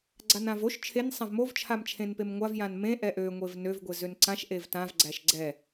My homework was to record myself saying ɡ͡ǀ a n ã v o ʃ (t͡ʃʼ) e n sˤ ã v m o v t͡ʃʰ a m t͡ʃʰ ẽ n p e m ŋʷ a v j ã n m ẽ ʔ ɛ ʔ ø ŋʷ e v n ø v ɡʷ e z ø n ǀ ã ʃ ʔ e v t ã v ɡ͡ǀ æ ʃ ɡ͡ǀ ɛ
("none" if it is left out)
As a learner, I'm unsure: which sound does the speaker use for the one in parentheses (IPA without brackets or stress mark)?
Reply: t͡ʃʰ